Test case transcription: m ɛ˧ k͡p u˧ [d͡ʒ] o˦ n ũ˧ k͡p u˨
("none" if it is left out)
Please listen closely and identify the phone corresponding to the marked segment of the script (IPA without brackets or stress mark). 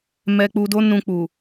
d